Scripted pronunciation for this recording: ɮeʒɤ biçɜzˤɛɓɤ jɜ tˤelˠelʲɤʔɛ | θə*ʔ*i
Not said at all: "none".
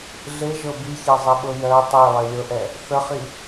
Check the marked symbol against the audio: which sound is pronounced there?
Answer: χ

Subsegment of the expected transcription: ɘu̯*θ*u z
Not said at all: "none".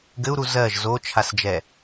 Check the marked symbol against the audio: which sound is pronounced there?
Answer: ɾ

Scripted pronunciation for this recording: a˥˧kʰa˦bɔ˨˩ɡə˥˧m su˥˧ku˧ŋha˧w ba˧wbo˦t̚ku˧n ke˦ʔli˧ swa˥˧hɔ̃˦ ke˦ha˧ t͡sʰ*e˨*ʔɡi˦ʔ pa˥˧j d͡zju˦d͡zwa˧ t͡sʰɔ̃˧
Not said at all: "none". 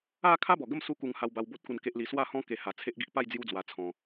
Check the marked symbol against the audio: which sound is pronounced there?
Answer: e˦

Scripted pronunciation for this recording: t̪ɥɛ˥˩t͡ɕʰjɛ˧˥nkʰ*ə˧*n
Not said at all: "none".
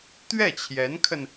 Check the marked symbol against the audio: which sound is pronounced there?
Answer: ə˧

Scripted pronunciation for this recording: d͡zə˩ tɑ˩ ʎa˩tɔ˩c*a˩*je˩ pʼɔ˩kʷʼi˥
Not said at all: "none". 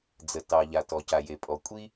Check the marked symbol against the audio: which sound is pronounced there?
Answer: a˩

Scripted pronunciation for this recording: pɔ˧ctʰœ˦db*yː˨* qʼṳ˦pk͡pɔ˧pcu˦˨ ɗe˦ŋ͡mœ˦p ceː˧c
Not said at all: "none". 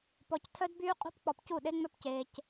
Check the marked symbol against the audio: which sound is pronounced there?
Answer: yː˦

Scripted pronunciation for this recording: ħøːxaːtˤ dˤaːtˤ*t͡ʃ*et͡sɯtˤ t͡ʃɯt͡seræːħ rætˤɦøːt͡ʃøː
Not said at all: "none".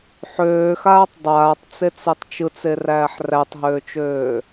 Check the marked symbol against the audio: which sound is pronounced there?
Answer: t͡s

